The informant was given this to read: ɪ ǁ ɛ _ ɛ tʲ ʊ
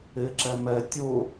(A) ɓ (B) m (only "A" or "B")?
B